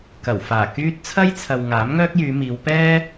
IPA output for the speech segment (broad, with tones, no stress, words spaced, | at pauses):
kɐ˨˩wfaː˨˩ kyː˧t̚ t͡sʰɐ˥jt͡sʰɐ˨w ŋaː˨˥mŋœː˥k̚jyː˨˧miː˨˧w pɛː˥